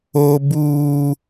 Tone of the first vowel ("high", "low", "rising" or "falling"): high